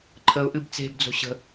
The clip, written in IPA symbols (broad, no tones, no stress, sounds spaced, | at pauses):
ǃʰ ə ʊ̯ ʔ ɨ b t͡s e̤ b d͡z o̤ ɕ ə̤